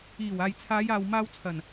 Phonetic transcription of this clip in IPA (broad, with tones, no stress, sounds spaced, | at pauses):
iː˨˩ w aː˨ j t͡sʰ aː˨˧ j aː˨ w m aː˧ w t͡sʰ ɐ˨˩ n